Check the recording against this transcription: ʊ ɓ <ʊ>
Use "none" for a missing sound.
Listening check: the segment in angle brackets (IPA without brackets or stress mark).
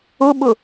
ʊ